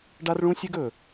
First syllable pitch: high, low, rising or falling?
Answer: high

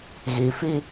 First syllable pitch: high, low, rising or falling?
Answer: low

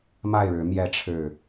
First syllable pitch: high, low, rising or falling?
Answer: falling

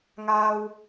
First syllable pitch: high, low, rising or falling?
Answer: high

